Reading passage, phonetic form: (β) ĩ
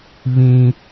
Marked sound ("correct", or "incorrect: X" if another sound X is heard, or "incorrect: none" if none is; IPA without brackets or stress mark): correct